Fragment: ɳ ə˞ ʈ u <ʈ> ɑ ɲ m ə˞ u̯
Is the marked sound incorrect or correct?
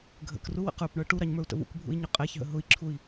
incorrect